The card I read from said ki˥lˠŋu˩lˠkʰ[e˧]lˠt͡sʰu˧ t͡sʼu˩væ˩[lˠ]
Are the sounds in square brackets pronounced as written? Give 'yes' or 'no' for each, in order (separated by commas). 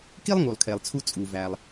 no, yes